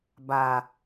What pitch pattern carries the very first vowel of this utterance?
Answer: low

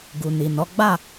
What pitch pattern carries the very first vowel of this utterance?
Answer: low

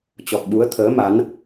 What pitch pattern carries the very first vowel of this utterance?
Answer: low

